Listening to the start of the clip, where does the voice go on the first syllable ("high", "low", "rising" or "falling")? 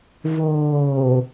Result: low